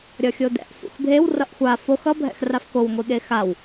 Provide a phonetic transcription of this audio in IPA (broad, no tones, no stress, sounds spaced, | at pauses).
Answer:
ɾʲ ʌ xʲ o d ɛ̰ ʔ f ṵ x bʱ e w r ʌ ʔ xʷ a f o x ʌ bʱ ɛ̰ x r a f k o w ŋʷ i ɠ e x a w